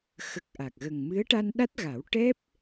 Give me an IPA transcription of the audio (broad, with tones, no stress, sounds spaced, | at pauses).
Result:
x ə˨˩ k̚ ʔ a˨˩ k̚ ɣ ə˨˩ ŋ m ɨ˧˥ ə̯ ʈ a˧ n ɗ a˦˥ t̚ ɣ a˨˩˦ w ʈ ɛ˦˥ p̚